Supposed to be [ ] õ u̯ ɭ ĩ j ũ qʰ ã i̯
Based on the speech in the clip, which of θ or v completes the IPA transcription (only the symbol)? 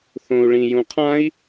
θ